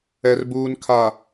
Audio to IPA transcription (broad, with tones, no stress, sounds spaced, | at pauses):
ɛ˨ r b uː˨ n kʰ a˨